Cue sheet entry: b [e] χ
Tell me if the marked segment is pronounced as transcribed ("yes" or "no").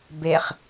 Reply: yes